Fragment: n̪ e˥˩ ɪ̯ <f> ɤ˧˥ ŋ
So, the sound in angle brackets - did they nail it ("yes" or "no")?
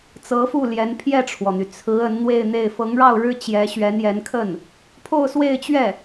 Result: yes